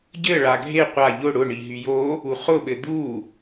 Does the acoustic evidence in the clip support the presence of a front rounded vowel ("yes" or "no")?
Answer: yes